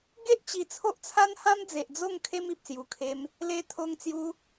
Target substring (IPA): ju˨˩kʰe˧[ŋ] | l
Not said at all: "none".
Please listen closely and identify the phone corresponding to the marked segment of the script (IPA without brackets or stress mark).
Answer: m